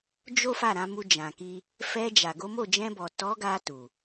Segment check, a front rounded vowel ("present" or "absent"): absent